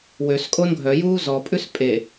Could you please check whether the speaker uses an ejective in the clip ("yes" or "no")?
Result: yes